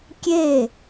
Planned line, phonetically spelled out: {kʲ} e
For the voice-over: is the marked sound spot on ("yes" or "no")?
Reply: yes